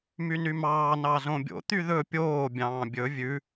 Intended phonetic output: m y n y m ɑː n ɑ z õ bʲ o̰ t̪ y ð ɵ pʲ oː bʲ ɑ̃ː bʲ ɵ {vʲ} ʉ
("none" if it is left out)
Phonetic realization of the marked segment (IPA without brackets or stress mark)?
vʲ